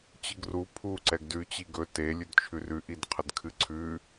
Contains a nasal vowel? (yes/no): no